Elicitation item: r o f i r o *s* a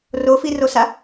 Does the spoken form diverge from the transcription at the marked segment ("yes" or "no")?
no